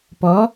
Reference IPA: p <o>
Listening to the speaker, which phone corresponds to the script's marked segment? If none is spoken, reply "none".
ɔ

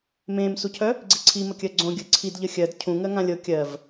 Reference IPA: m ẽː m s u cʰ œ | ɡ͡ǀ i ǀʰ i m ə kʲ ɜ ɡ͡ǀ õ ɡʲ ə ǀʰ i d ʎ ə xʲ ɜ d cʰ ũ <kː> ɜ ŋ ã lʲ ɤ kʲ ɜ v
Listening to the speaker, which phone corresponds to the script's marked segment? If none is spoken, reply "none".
ŋ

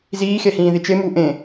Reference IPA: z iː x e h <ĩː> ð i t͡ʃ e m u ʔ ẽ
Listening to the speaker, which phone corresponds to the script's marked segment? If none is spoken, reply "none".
ĩː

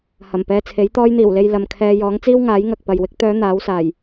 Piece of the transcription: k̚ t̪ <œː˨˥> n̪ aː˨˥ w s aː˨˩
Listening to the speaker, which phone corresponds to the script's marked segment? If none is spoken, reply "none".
œː˨˧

